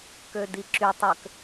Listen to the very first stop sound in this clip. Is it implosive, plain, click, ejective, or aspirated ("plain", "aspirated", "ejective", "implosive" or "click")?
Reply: plain